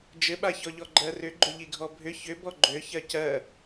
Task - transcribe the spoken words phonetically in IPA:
d͡ʒ ɘ ɓ a ç ɔ ʎ ɔ ɡ͡ǃ ɜ r ʏ ɡ͡ǃ ʏ ʎ i ɡʱ ɔ bʱ ʏ ç ʏ b ɔ ɡ͡ǃ ø ç ɜ c ɜ

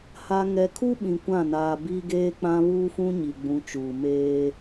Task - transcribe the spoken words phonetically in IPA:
h a˦ ŋ ɛ˦ kʰ u˦ ɓ ĩ˨ kʷ ã˦˨ n aː˨ b i˦ ɡ eː˦ k͡p ã˦ β uː˦ f ũ˦ ɲ i˨ ɡ͡b ũ˨˦ t͡ʃ uː˨ m eː˦

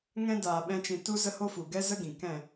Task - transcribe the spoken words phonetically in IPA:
ŋ ɛ̃˦ d aː˧ ɓ ɛ̃˦ t͡ʃ ĩ˧ t u˦ z ə˦ h o˦ f u˨ ɡ ɛ˦ z ə˦ ɡ ĩ˨ k ɛ̃˦˨

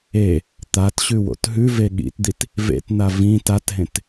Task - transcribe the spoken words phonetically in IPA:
e | t̪ a t ɕ ʉ w o̰ t ɦ ʉ v e ɠ ḭ t d̪ i t | v ḛ t n̪ a v ĩ t a t ɦ ẽ t

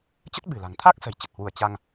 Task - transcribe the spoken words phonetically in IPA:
t͡ɕ ə˦˥ t̚ ɓ ɨ̤˨˩ l a̤˨˩ ŋ t̪ʰ a˦˥ k̚ s ə̤˨˩ j t͡ɕ ə˨˩ t̚ h w u˧˩ ə̯ t͡ɕ a˧ ŋ

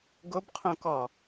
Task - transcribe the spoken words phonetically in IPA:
ɡ o b qʰ õ k ɔ

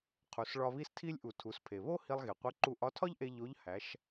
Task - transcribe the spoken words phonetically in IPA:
qʰ u˩ s ɭ ɒ˧ β i˧ s tʰ i˧ lʲ ʔ u˩ tʰ u˩˧ s pʰ e˩ β o˥ h i˧ lˠ ɣ e˩ qʷ e˧˥ ǃ u˧ ʔ ɒ˧˥ tʰ ɒ˥ ʎ ʔ e˧ ʎ o˧˥ ʎ h æ˩˧ ʃ

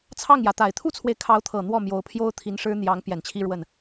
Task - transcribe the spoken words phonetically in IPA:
t͡sʰ ɑ˥˩ ŋ j ä˩ t̪ a˨˩ ɪ̯ t̪ʰ u˥ t͡sʰ w e˨ ɪ̯ kʰ ɑ˧˥ ʊ̯ t̪ʰ ɤ˨˩ n̪ w ɔ˥˩ m j o˧˥ ʊ̯ pʰ j o˥ ʊ̯ t̪ʰ i˧˥ n ʂ ɻ̩˥ n̪ j ɑ˧˥ ŋ p j ɛ˨˩ n t͡ɕʰ i˥˧ ɻ w ə˥˩ n

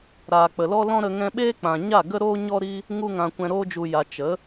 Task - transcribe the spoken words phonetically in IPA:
ɾ aː˨ k͡p ə˨ l ɔ˦ l ɔ̃˦ ɾ ə˧ ŋ ɛ̃˧ ɓ eː˦ k͡p ã˨ ɲ a˦˨ ɡ ə˦ ɾ oː˦ ɲ ɔ˦ ɾ i˦ | ŋ u˦ ŋ ã˧ kʷ ɛ̃˧ ɾ oː˧ d͡ʒ u˨ j a˨ t͡ʃ ə˨˦

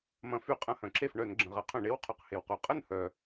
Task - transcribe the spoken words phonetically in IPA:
m ɐ̃˨˦ f y˧˩˧ qʼ ɐ̃˧˥˧ h œ̃˩ ǁ e˥˩ f ɳ œ˧˩˧ n ɡ͡ǁ ə̃˩ ʁ ɐ˨˦ qʰ œ̃˧˩˧ ɳ e˧˥˧ w qʰ ʊ˧˩˧ q h e˩ w q o˩ qʼ ə˥˩ n h œ˩

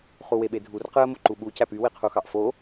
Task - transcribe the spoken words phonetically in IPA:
χ u w e ɓ e dʱ u r q ɯ ə̯ m o ǃ u ɓ u c æ p y w i qʰ u x ɑ ʔ f o

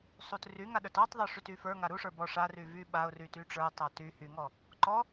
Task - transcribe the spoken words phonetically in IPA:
sˤ u t r y ŋ a ɗ ə˞ t ɔ tˤ ðˤ ə˞ ʂ y t y f ə˞ ŋ a ɾ u ʂ ə˞ b ɔ ʂ a r y v y ɓ a ʊ̯ r y t y ʈ͡ʂ ə˞ tˤ a t y h y ŋ ɔ | ǃ ɔ

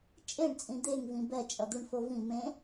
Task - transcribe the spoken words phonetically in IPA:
t͡ʃʼ e ɳ t͡sʼ ĩ d̪ e ŋ v ĩ b ɛ t͡ʃʼ ʌ d̪ u ɳ f o v ĩ m ẽ

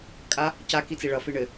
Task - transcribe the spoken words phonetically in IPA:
kʼ a | c a k i t͡s i ɭ ʌ f i ɳ ɘ

